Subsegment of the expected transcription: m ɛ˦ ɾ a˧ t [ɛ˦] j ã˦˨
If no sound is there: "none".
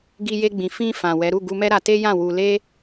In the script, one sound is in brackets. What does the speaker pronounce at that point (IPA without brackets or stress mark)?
e˦